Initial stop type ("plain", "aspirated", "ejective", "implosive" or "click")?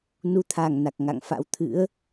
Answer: aspirated